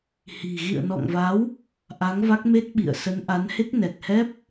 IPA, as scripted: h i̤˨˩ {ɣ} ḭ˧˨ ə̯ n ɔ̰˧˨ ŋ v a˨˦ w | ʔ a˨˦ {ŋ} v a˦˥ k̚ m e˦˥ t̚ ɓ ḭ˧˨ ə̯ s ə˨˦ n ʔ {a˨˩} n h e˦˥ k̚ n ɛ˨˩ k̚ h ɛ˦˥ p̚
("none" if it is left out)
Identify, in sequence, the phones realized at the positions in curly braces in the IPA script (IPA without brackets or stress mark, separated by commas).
ɣ, ŋ, a˨˦